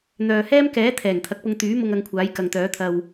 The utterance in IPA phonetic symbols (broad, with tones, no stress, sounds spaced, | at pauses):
n̪ œː˨ h ɛː˥ m k ɛː˨˥ t̪ʰ ɛː˨˩ ŋ t̪ʰ ɐ˨ k̚ p ʊ˧ ŋ t̪ yː˨˥ m ʊ˧ ŋ ɐ˧ ŋ kʷʰ aː˨˥ j k ɐ˨ ŋ t̪ œː˨˥ t̪ʰ ɐ˧ w